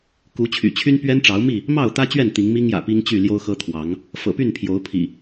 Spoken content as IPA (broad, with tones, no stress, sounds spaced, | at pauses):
k u˨˦ t͡ɕʰ y̰˨˩ t͡ɕʰ y˦ n p ɥ ɛ˦ n ʈ͡ʂ ɑ˨˦ ʊ̯ m i˥˨ | m ɑ˥˨ ʊ̯ t̪ ä˦ t͡ɕ ɥ ɛ˥˨ n t̪ i˨˦ ŋ m i˦ ŋ j ä̰˨˩ p i˦ ŋ t͡ɕ y˥˨ l j o˦ ʊ̯ x ɤ˦ t̪ʰ w ɑ˨˦ ŋ | f ɤ̰˨˩ p y˥˨ n pʰ j o˨˦ ʊ̯ pʰ ḭ˨˩